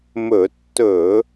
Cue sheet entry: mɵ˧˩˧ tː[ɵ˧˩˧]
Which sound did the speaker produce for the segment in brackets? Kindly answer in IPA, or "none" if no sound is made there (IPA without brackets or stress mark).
ɵ˧˩˧